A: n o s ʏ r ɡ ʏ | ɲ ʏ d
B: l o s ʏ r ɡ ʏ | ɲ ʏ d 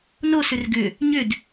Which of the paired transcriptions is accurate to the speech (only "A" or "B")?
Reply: A